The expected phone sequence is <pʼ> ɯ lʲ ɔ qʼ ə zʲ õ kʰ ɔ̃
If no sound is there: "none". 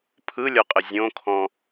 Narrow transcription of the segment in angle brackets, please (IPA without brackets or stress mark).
pʰ